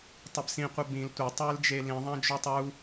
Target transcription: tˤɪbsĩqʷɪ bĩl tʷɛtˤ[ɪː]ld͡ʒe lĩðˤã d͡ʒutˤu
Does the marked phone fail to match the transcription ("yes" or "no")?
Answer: no